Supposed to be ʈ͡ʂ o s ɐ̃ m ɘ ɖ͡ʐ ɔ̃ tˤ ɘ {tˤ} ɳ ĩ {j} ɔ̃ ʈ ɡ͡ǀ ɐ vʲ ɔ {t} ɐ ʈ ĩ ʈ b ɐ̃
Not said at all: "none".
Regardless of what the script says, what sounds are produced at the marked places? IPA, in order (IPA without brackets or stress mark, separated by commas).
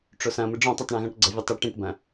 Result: tˤ, ɣ, tˤ